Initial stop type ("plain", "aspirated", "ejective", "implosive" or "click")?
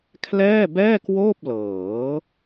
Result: aspirated